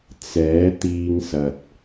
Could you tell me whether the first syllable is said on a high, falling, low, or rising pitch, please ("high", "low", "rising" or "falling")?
rising